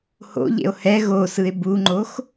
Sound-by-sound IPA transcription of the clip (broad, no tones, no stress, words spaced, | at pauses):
ho̰ʎḛo̯ hɛ ɣosɯe̯ buŋ͡ǃox